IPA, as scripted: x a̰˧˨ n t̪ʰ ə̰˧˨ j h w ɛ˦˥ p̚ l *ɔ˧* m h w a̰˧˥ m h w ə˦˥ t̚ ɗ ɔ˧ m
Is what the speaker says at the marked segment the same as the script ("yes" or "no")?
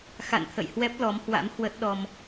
no